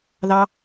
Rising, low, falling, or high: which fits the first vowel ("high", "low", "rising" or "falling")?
high